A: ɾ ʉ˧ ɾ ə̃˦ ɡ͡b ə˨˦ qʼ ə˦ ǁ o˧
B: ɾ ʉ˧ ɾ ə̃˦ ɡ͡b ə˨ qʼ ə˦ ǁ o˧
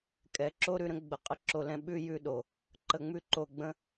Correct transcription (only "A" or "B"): B